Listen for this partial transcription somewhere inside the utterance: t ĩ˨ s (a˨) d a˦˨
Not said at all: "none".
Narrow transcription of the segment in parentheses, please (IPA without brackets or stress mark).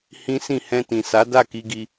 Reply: a˨˦